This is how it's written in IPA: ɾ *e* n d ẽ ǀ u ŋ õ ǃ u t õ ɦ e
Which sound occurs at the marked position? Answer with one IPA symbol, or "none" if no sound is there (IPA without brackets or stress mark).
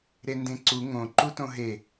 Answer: e